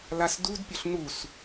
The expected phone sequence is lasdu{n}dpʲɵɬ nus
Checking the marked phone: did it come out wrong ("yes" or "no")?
yes